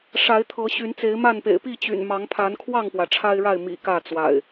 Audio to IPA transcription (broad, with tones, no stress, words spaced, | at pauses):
ʂa˨˦ɪ̯t̪ʰɤ˨˦ ɕy˨˦nt͡se˨˦ɪ̯ma˥˨npḛ˨˩ɪ̯ pi˥˨t͡ɕy̰˨˩nmɑ˨˦ŋ pʰa˨˦nkʰwɑ˥˨ŋpwä˩ ʈ͡ʂʰa˦ɪ̯ɻa˥˨ɪ̯mḭ˨˩ kä˥˨t͡swa̰˨˩ɪ̯